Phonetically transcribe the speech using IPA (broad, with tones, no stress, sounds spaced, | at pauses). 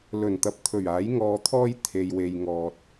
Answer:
l ɵ˨˩ n t̪ ɐ˨˥ p̚ t̪ʰ ɵ˨˩ ɥ aː˨˥ j ŋ ɔː˧ t̪ʰ ɔː˥ j t̪ʰ e˨ j w e˨ j ŋ ɔː˨ t̚